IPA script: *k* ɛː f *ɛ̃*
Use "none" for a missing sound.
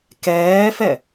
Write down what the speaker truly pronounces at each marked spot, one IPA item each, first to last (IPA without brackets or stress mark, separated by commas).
k, ɛ